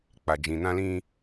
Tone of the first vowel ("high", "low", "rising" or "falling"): low